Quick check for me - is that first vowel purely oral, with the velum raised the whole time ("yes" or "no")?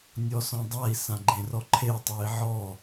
yes